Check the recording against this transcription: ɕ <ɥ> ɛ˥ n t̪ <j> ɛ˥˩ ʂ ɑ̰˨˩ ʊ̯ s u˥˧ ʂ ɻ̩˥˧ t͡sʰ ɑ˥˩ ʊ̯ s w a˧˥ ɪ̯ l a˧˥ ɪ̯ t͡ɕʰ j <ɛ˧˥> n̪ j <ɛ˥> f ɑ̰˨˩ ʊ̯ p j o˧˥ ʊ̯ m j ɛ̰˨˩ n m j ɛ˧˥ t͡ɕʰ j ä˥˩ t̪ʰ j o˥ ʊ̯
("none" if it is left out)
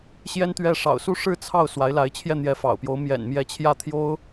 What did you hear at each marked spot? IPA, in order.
j, ɥ, ɛ˥˩, ɛ˧˥

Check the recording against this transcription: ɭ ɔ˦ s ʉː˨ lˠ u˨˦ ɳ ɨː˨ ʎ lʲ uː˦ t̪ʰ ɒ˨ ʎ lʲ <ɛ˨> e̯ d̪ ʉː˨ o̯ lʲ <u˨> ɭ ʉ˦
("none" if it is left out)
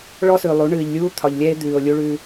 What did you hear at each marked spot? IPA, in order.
ɛ˦, u˦

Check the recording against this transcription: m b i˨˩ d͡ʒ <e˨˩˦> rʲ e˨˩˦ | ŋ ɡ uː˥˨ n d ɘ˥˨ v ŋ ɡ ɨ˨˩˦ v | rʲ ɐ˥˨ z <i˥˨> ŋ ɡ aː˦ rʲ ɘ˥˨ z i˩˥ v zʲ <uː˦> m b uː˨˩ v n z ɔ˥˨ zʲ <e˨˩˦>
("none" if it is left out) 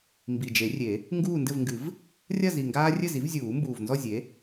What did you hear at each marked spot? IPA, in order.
e˨˩˦, i˨˩, uː˨˩˦, e˩˥

